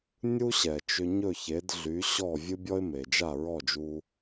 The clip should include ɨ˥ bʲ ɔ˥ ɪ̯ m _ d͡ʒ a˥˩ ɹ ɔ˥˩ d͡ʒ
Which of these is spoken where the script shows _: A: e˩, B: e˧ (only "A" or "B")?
A